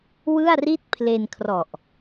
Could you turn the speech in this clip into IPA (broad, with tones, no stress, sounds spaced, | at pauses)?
w ɯ˥˩ a̯ r i˥˩ t̚ pʰ l e˧ n kʰ r ɔ˨˩ ʔ